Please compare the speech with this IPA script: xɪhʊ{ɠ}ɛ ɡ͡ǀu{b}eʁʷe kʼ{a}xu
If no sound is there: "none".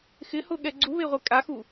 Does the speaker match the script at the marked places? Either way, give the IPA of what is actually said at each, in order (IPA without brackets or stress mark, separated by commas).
ɠ, β, a